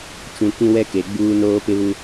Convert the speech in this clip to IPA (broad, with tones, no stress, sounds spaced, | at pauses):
t͡ʃ ũ˨ k ĩ˦ w ɛ˦ k e˨ ɡ͡b uː˦ n oː˦ p ɪ˦ β u˦